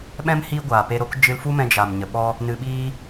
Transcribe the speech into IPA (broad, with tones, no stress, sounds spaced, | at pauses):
ɓ ɛ̃˦ m h i˦ ɡʷ aː˨ p e˧ ɾ o˦ k d͡ʒ ɨ˧ l f u˦ m ɛ̃˧ d͡ʒ a˨ m ɲ ə˨ ɓ ɔ˦ | n ɨ˧ ɓ iː˦